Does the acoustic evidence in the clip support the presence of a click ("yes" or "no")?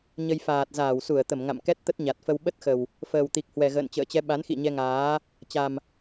no